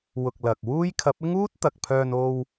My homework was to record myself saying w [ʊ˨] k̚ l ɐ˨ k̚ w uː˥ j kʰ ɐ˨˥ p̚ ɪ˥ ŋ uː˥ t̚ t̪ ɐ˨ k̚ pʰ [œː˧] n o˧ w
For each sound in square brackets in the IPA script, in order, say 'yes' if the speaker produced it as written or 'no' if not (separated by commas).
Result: yes, yes